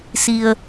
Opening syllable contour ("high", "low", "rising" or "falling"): low